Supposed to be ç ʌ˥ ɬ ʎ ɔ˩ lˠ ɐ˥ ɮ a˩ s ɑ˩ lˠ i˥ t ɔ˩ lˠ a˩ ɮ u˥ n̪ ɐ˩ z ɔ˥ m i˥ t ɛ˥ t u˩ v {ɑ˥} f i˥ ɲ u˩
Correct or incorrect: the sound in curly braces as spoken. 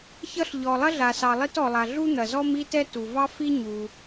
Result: correct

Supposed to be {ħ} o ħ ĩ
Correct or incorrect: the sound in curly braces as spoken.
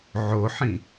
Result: incorrect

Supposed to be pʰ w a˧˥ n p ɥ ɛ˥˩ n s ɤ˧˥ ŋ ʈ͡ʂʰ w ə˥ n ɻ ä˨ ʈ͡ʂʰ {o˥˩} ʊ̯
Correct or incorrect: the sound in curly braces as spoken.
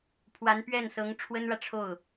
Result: correct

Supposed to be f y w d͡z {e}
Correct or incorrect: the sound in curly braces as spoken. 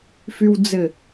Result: incorrect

